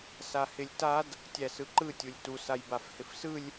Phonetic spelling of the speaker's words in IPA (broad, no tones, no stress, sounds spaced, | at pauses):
s a h ɪ lʲ t a d | tʲ æ s ɯ ǃ ɯ tʲ u lʲ t u s a j b a f h ɪ f s ɯ lʲ